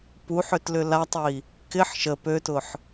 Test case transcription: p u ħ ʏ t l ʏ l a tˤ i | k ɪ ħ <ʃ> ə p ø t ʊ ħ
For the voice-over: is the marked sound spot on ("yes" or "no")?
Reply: yes